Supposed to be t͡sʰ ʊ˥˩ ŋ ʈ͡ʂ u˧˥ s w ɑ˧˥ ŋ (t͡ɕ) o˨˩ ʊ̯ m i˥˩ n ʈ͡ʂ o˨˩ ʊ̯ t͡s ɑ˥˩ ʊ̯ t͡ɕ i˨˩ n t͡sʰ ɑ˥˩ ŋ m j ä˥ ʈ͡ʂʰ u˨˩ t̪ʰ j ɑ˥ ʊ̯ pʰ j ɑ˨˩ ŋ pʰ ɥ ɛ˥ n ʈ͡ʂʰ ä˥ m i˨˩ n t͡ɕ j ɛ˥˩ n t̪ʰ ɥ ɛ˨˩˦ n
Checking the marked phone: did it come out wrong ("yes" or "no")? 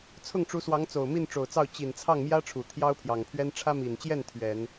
yes